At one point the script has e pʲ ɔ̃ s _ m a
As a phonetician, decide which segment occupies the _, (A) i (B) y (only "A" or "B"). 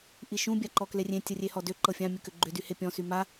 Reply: B